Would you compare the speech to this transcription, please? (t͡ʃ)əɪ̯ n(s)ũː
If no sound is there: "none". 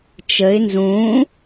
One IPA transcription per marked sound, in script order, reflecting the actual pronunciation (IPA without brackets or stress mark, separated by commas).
t͡ʃ, z